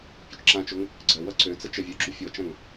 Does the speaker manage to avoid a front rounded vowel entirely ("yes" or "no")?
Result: no